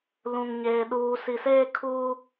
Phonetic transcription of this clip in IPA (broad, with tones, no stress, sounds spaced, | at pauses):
l ũ˨ ŋ ɲ eː˨ ɗ uː˨ s i˨ s eː˦ kʰ uː˦